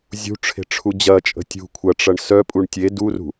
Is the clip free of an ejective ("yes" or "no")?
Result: no